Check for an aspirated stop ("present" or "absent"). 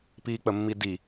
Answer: absent